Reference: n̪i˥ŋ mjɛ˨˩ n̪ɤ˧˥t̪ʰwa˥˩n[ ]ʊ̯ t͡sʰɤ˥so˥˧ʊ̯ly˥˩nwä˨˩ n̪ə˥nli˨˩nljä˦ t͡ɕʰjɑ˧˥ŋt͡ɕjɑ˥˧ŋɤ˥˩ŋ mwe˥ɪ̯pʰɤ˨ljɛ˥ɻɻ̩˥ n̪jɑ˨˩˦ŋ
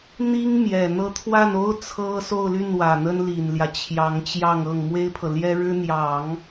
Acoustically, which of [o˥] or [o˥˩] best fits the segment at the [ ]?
o˥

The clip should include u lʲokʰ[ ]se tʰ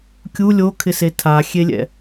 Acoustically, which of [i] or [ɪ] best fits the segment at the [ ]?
ɪ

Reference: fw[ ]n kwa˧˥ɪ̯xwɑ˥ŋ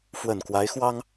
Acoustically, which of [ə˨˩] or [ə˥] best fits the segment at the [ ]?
ə˨˩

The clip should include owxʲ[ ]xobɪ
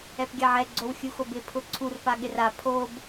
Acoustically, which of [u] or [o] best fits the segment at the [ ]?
u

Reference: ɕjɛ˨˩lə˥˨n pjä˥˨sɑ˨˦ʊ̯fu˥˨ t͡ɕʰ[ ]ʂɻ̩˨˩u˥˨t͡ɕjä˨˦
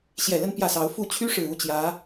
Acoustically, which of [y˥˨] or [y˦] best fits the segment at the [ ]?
y˦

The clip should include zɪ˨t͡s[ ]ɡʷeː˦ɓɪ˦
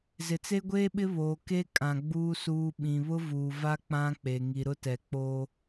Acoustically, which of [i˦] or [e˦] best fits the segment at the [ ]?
e˦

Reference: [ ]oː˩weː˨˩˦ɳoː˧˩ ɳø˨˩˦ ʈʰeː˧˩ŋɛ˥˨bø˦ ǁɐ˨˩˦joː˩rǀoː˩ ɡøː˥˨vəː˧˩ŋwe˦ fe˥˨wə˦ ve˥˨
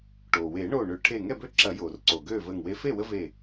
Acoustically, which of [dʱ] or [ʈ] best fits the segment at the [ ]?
ʈ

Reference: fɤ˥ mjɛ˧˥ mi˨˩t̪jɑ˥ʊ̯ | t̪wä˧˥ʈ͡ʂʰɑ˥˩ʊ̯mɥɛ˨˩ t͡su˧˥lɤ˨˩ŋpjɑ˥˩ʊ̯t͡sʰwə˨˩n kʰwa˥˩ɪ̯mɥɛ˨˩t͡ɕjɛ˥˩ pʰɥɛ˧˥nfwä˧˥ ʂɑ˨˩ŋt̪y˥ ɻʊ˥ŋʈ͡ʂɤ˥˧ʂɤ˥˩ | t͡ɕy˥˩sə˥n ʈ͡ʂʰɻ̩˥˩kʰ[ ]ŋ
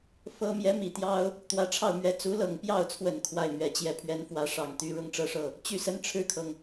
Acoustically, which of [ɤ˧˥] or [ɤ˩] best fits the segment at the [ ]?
ɤ˩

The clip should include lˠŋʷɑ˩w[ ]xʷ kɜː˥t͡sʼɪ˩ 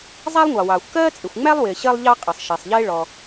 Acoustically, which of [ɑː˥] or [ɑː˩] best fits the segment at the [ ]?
ɑː˩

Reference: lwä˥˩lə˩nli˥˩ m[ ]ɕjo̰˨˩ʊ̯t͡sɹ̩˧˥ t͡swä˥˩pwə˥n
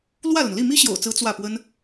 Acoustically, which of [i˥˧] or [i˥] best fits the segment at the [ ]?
i˥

